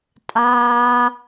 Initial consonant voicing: voiceless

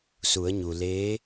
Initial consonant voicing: voiceless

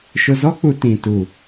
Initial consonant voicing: voiceless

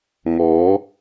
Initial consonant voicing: voiced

